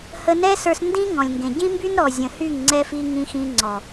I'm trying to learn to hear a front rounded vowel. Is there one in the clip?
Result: yes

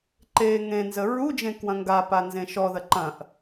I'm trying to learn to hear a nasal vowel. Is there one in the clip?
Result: yes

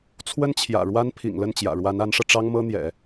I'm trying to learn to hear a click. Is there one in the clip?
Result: no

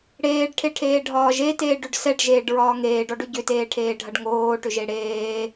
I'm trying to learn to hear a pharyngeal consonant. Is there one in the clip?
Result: no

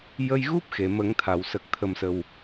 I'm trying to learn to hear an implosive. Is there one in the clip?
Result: no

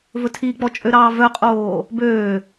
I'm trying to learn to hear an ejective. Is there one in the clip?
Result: yes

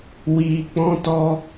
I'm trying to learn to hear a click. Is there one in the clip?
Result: no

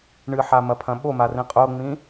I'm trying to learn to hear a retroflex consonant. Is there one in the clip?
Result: yes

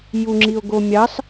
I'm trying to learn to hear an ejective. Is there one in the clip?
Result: no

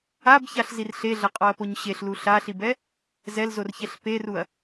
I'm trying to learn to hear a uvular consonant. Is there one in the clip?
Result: yes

